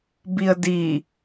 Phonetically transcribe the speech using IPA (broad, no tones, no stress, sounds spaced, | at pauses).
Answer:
b i ə̯ d i